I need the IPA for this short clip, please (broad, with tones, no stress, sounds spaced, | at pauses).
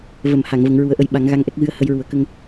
v ə˨˩˨ m h a˨˩˨ ŋ v ə˨˩˦ ŋ ɹ u˨˩˦ ə̯ ʔ ə˧ j ɓ a˨˩˦ ŋ ɣ a˧ ŋ ʔ ɛ˦˥ k̚ ɣ ɨ˧ ə̯ h ə˧ j ɹ u˨˩˦ ə̯ k ə˧ ŋ